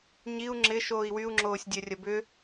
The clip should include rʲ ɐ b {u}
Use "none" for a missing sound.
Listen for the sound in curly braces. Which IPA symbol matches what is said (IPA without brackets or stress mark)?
ʏ